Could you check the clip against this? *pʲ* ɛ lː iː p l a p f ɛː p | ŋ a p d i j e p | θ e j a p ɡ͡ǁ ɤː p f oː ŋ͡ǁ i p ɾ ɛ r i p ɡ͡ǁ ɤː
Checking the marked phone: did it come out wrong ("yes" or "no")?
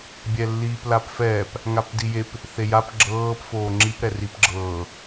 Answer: yes